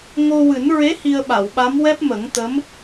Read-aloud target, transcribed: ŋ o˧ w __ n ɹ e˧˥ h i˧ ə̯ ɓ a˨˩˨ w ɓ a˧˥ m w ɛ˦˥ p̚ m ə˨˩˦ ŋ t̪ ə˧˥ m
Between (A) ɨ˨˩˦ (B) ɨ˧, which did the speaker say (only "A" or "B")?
A